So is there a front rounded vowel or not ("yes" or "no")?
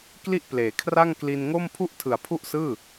no